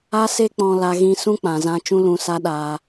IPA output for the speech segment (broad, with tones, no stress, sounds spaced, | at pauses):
a˦ s e˦ k͡p ɔ̃˧ l a˧ ɣ ĩ˧ s ũ˦ k͡p ã˨ z ã˧ t͡ʃ ũ˦ l ũ˧ s a˦ ɗ aː˧